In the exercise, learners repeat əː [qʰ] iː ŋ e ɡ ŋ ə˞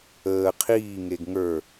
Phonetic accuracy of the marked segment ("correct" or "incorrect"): correct